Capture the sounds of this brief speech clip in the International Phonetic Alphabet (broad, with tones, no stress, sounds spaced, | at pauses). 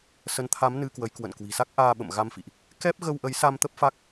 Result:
s ə˨˦ n t̪ʰ a˨˦ m n ɨ˧ k w ə˨˦ j k w ə̰˧˨ n k w i̤˨˩ s a˦˥ k̚ ʔ aː˧ ɓ ə̰˧˨ m ɣ a˧ m f ḭ˧˨ ʔ | k ɛ˦˥ p̚ ɣ ə˧ w ʔ ə˨˦ j s a˧ m t̪ ə˦˥ p̚ f a˦˥ k̚